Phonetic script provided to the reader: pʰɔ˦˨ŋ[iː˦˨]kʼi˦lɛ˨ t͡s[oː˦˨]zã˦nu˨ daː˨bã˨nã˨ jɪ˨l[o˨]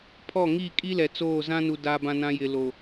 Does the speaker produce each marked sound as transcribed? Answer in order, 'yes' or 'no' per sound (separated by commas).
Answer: yes, yes, yes